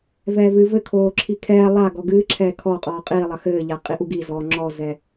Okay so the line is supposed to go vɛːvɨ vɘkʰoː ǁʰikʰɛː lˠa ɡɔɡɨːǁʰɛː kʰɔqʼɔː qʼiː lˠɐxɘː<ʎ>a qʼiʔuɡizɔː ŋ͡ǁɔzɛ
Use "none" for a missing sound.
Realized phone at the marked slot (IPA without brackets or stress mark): ʎ